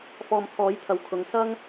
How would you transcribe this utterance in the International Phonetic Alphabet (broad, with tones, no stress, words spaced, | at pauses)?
fɔː˨mt̪ʰɔː˨˥jt̪ʰɐ˨wkʰʊ˨˧ŋ sɐ˥ŋ